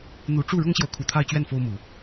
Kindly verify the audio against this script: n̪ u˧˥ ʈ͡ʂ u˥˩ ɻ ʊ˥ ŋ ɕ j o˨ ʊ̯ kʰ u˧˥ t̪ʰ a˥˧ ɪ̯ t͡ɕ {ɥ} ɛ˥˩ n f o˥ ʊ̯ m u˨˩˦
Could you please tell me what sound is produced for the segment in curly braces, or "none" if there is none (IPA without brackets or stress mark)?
ɥ